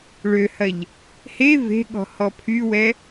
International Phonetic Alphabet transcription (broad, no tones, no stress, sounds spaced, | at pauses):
ɭ ø h ɐ ʎ | h e v e̤ ɠ ɔ̤ h ɔ pʰ y w ɛ